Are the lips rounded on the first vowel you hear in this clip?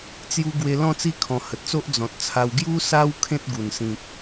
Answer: yes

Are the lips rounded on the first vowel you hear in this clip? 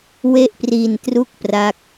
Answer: no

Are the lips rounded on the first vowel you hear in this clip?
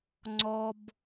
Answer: yes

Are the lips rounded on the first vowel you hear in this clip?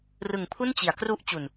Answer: no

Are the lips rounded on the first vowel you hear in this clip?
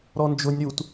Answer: yes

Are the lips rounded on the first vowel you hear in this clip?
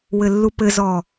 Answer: no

